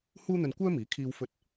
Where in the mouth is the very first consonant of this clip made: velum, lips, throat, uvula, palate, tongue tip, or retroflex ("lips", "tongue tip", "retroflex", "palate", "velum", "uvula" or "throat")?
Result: throat